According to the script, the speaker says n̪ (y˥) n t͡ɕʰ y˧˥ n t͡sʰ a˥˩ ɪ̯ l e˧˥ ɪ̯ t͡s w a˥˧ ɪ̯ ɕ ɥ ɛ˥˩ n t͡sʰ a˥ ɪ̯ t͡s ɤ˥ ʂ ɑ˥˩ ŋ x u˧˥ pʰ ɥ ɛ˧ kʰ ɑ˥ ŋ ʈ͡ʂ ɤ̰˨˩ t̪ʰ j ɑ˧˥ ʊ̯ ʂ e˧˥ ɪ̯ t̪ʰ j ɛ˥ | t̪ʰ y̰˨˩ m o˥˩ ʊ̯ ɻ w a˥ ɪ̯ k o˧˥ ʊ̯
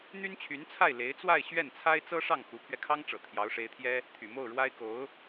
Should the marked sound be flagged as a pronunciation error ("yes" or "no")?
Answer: no